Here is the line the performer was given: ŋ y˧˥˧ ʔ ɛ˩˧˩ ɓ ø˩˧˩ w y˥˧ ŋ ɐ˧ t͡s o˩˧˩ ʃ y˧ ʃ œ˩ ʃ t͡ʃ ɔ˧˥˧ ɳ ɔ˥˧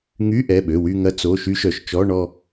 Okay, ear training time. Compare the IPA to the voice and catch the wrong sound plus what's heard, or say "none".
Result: none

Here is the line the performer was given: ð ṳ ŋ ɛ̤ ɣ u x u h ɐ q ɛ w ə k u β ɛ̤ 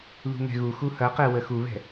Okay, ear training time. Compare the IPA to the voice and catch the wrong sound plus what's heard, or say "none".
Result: k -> x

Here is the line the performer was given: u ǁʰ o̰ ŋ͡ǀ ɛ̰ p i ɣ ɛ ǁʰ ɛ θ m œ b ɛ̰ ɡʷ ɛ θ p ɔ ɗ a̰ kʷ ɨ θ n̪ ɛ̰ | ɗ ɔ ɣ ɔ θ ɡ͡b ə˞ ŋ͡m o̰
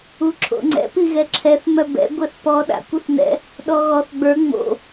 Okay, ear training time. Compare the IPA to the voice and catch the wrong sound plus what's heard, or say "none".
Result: none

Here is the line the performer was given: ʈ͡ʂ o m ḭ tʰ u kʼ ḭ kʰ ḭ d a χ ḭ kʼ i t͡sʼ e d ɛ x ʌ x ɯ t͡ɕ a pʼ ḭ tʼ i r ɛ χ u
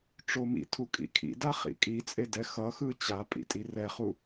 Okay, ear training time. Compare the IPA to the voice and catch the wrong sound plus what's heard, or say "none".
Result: none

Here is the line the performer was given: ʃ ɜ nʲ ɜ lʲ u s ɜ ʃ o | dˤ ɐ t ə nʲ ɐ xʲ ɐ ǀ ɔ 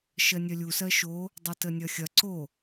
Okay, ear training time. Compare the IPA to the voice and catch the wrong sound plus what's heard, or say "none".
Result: ɔ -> o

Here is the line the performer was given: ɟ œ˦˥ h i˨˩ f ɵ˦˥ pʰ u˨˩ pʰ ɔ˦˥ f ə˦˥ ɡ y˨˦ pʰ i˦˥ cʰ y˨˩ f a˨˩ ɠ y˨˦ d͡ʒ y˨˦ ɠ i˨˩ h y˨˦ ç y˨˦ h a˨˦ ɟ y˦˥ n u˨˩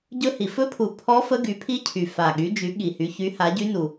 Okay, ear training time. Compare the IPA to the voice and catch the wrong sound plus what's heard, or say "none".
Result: œ˦˥ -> ɵ˦˥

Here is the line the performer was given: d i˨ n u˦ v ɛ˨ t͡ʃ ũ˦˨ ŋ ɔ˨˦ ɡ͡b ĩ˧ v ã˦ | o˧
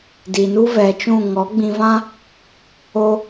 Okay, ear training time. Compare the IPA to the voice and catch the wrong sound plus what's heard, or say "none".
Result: none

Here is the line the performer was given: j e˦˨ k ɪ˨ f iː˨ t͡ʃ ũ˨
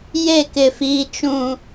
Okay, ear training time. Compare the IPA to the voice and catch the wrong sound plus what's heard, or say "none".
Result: none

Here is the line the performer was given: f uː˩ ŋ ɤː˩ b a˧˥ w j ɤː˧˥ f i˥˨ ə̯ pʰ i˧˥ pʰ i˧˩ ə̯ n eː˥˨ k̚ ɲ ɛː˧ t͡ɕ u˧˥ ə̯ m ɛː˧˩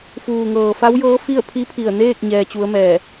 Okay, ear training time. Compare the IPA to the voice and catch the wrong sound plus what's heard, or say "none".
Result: b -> f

